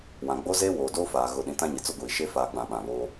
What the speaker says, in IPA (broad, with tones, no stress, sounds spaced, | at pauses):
w ã˨ ɡ͡b o˦ z eː˦ w oː˨ d o˦ f aː˨ ɣ ʊ˨ ɗ ĩ˨ t ã˦ ɲ ɪ˨ t͡s ʊ˦ ɡʷ iː˨ ʃ eː˦ f aː˦ ɡ͡b ã˦˨ ɓ ã˦˨ β oː˦